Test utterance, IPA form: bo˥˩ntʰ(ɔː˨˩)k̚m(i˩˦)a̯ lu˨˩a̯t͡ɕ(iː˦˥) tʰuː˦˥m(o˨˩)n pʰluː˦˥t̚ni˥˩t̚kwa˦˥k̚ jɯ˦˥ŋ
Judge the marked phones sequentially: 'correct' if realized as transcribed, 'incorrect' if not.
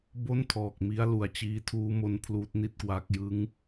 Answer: correct, incorrect, correct, incorrect

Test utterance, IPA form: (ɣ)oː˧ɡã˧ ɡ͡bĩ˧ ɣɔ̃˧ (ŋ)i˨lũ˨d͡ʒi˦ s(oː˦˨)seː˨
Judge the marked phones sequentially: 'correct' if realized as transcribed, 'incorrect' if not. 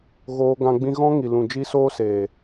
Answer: correct, correct, incorrect

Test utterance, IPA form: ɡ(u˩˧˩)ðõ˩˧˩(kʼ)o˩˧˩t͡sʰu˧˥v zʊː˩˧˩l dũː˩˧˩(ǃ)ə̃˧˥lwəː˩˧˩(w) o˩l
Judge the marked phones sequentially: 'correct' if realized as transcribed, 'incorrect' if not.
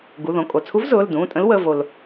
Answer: correct, correct, incorrect, incorrect

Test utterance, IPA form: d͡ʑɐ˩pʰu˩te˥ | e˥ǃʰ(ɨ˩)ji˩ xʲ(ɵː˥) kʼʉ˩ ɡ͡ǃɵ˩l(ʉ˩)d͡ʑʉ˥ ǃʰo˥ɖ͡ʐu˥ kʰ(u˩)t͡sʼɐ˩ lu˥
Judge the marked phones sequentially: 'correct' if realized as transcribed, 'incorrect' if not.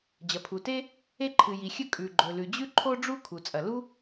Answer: correct, incorrect, correct, correct

